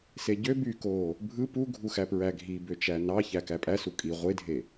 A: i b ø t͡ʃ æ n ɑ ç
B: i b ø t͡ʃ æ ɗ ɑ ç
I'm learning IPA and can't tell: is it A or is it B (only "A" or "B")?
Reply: A